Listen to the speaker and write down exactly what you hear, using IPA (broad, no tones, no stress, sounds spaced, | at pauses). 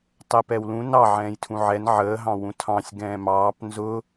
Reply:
tˤ ɛ p ɛ w l ũ n ɑ ʕ ɛ̃ː j tʰ ũ ʕ ɛ n ʕ əː ɦ ɑ̃ w ũ tʰ ɑ̃ sʲ ɡ ɛ̃ː m ɑː p n z ʊ